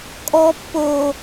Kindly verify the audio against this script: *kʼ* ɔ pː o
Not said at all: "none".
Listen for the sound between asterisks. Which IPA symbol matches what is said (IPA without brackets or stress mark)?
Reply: kʼ